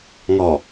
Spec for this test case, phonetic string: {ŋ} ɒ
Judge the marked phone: correct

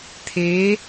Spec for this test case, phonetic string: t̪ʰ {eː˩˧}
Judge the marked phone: incorrect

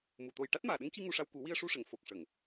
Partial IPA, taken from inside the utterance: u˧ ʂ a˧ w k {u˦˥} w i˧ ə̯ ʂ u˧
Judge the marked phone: incorrect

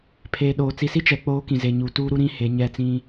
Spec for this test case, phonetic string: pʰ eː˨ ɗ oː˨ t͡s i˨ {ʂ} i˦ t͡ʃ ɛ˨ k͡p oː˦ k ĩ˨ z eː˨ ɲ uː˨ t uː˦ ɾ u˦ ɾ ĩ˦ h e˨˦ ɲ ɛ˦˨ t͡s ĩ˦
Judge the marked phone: incorrect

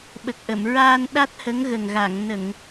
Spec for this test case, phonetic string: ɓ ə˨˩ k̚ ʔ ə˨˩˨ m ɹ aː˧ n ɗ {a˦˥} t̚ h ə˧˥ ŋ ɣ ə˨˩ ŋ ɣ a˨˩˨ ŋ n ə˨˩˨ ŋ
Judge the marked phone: correct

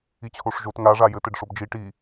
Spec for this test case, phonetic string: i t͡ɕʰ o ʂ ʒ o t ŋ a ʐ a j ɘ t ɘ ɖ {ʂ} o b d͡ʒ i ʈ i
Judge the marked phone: correct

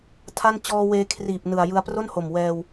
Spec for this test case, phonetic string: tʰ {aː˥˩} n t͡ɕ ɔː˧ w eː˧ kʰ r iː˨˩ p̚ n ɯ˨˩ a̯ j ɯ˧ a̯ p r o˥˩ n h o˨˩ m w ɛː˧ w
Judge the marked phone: incorrect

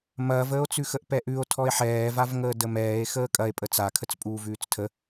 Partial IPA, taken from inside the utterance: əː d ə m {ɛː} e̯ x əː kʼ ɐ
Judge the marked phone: correct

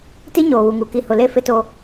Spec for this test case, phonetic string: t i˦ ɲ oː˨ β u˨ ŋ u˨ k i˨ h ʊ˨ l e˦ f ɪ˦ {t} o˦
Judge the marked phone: correct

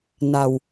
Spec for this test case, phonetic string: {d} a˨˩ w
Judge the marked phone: incorrect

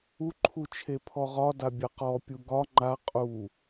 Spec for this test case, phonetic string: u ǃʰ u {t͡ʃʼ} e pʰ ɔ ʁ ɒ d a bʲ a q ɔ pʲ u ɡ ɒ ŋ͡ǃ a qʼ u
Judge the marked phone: incorrect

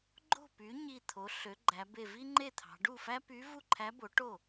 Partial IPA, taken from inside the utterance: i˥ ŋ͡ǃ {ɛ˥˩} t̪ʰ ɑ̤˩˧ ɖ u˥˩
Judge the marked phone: incorrect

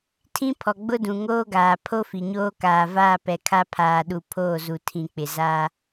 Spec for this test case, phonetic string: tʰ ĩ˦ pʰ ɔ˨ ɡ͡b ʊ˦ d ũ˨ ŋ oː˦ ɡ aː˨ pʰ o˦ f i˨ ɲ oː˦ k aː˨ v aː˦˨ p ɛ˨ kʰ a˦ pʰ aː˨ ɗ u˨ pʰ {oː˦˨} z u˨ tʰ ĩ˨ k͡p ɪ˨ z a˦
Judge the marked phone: correct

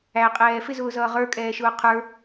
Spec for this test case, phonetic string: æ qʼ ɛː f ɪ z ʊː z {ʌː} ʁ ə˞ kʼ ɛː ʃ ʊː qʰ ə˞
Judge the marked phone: correct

